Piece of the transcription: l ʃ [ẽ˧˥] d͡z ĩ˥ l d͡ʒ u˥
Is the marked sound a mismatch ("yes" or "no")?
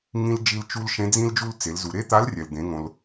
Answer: no